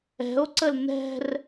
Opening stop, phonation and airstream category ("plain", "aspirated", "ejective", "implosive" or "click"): click